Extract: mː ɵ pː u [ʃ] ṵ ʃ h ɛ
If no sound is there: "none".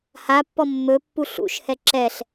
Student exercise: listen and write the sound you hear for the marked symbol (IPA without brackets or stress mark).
ɬ